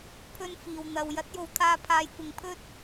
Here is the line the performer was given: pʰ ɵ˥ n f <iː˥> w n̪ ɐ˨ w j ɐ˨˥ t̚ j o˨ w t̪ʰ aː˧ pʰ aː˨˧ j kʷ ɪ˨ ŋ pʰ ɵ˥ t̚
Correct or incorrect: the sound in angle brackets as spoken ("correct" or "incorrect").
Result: incorrect